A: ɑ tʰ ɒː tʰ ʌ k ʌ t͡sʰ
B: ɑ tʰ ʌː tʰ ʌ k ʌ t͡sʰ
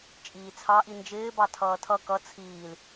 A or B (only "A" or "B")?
B